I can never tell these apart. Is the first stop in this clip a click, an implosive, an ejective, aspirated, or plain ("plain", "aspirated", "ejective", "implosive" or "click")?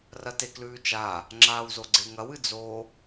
plain